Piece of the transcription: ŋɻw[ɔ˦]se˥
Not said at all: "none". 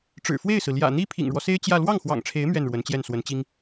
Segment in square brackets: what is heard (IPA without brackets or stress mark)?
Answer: ɔ˦